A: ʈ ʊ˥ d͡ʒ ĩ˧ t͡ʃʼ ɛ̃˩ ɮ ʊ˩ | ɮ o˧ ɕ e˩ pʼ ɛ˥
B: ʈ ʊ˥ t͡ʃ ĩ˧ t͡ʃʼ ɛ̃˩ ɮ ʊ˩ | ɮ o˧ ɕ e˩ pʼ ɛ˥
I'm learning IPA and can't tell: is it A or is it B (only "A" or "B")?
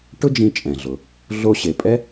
A